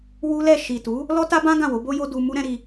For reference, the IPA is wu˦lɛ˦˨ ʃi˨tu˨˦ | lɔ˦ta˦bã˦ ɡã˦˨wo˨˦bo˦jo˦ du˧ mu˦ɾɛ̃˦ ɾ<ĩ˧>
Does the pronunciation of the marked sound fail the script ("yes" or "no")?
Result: yes